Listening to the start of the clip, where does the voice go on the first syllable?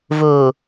low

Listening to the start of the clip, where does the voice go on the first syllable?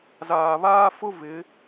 low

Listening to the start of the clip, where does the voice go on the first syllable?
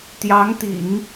rising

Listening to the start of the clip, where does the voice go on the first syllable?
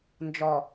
low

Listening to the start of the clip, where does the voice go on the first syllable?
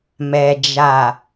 low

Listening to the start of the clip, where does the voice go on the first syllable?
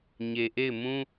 low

